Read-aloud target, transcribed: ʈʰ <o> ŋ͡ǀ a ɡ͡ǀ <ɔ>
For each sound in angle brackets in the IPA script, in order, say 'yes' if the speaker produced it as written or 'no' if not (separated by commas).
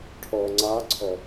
no, yes